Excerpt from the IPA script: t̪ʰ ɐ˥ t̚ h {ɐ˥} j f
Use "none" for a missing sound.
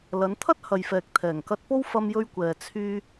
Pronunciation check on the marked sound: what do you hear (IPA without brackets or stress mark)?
ɐ˨